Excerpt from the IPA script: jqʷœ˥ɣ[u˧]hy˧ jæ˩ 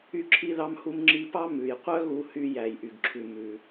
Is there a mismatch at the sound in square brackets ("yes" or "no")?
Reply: no